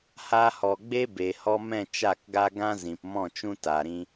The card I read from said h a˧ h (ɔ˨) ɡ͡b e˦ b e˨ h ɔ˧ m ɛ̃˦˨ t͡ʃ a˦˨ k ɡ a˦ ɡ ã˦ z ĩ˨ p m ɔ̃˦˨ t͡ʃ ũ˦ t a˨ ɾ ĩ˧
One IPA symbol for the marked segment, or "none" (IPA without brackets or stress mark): ɔ˨